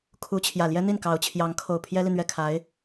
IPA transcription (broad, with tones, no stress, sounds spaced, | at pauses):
kʰ u˧˥ t͡ɕʰ j ä˨˩ l j ɛ˥ n̪ i˥˩ n k ɑ˧˥ ʊ̯ t͡ɕʰ j ɑ˧˥ ŋ kʰ o˨˩ ʊ̯ pʰ j ɛ˥ l i˨ n̪ ɥ ɛ˥˩ kʰ a˧˥ ɪ̯